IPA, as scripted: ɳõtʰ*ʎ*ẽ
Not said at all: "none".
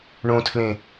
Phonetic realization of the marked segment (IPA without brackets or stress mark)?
l